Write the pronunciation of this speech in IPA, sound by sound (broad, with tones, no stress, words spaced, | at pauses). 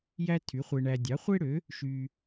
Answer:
jæ˥tʰy˩˥χʷe˧ɳæ˧ dʲɑ˩˥χʷe˥ɽø˩˥ | ʃy˧